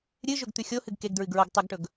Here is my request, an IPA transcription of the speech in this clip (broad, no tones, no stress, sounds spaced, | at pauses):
ɾʲ ɨ ʒ ɵ ɡ t̪ ʉ xʲ o h ɨ ɡ k e ɡ d ɹ ɨ ɡ ɹ o ɡ tˤ ɨ ɡ ʈ ɵ ɡ